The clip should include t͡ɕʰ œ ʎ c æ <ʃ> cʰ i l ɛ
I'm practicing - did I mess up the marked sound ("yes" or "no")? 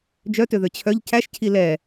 no